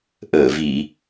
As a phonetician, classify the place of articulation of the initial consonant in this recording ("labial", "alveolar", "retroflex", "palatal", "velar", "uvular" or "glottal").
glottal